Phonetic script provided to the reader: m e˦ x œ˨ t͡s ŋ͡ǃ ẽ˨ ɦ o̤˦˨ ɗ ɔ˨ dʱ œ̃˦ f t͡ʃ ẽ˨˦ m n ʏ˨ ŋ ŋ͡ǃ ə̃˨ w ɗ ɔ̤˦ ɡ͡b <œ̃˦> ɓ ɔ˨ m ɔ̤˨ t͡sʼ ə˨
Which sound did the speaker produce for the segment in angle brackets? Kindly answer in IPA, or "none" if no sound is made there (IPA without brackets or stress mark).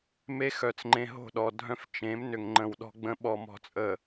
ə̃˦